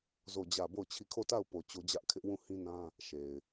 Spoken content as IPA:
z o˦˨ d͡ʑ ä˦˨ b o˦˨ ʊ̯ t͡ɕʰ i˦˨ kʰ o˦˨ t a˦˨ ʊ̯ p o˨ t͡ɕ o˦ d͡ʑ ä˦ ʔ kʰ ɪ˦ ʔ w ũ˦˨ h ĩ˦ n ã˦ | ʃ e˨ ɪ̯

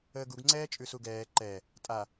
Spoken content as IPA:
əː ɡ u ɡ ŋ͡ǀ ɛː t͡ʃʼ ʉ s u ɡ ɛː ǃ ɛ | tʼ a

